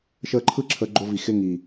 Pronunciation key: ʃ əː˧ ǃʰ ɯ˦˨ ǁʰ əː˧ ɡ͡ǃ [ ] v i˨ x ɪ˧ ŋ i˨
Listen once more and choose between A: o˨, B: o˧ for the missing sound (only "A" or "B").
B